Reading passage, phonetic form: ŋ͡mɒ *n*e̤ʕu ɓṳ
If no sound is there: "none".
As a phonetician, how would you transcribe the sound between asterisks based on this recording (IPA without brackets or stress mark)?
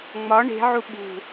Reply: ɳ